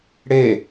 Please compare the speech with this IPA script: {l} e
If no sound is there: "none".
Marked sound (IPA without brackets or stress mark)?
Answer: ɽ